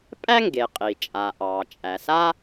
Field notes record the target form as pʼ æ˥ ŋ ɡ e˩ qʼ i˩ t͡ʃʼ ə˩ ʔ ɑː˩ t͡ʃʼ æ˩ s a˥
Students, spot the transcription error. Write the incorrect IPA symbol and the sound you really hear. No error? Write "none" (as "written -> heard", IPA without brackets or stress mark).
ə˩ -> a˩